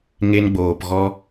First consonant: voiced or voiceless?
voiced